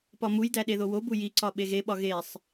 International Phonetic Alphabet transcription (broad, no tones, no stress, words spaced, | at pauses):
pɒmujdæ ɗeðowobu jiǀɒ ɓeɣeɓɒ ɣesˤ